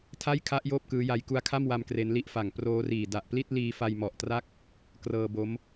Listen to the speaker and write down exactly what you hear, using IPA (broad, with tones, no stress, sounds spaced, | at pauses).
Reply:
tʰ a˥˩ j kʰ a˦˥ ʔ j oː˥˩ p̚ k ɯː˦˥ j a˧ j k u˧ a̯ kʰ a˥˩ m w a˧ m k r e˦˥ n l i˥˩ ʔ f a˨˩ ŋ p r oː˦˥ r iː˨˩ d a˨˩ ʔ p l i˥˩ t̚ l iː˧ f a˧ j m ɔ˨˩ ʔ t r a˥˩ k̚ | k r ɤː˧ b o˦˥ m